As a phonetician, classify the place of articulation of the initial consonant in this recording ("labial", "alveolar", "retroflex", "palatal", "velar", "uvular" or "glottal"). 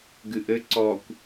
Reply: velar